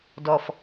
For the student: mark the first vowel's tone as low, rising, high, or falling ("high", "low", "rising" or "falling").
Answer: low